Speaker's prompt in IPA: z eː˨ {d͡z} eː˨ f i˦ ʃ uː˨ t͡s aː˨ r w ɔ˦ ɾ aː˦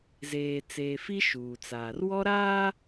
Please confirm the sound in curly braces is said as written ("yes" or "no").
no